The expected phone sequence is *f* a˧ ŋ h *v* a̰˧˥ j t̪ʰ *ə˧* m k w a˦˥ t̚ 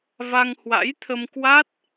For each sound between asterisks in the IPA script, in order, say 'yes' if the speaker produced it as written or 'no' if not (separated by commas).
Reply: no, no, yes